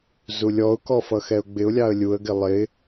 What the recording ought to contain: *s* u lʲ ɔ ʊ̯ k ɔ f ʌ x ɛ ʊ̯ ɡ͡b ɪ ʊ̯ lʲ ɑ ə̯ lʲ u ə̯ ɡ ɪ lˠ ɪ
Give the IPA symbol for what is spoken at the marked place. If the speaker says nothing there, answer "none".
z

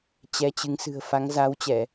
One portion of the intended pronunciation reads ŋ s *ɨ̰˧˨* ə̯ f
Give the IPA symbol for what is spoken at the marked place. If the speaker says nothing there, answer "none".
ɨ̤˨˩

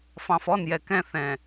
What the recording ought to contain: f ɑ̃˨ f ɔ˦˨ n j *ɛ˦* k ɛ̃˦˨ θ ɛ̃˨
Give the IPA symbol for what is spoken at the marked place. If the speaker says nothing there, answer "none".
ɛ˨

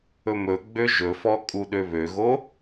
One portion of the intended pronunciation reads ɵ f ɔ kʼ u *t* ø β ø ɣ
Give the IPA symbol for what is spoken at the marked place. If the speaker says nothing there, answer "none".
ɗ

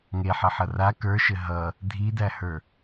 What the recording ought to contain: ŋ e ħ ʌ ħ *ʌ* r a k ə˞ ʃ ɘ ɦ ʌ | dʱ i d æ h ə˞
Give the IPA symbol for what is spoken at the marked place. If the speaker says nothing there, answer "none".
ʌ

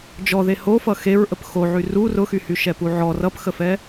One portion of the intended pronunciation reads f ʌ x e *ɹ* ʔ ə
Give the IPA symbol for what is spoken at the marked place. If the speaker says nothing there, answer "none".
ɹ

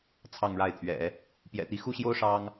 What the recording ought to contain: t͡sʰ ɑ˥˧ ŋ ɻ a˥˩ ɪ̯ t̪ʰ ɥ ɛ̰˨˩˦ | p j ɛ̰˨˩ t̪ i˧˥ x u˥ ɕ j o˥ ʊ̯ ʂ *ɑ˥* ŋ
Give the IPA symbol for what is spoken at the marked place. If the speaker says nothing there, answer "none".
ɑ˥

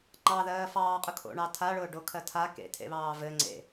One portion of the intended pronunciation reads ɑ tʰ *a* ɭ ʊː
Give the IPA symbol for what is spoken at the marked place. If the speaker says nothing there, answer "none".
a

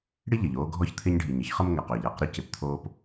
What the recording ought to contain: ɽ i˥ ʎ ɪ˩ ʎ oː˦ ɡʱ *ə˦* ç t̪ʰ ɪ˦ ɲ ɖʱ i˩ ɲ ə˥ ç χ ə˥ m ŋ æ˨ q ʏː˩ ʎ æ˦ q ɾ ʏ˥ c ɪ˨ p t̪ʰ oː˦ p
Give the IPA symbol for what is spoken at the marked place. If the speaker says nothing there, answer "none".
ɔ˦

